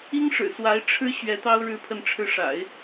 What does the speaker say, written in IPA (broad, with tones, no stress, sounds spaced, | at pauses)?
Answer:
i˥ ŋ ʂ ɻ̩˨˩ s w a˧˥ ɪ̯ ʈ͡ʂʰ ɻ̩˥ ɕ ɥ ɛ˧˥ t̪ ɑ˥ ʊ̯ ɻ ɻ̩˥ pʰ ə˥˧ n ʈ͡ʂʰ ɻ̩˥˩ ʂ a̰˨˩˦ ɪ̯